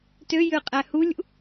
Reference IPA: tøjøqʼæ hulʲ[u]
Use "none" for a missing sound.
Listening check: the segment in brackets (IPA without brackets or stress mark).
ṵ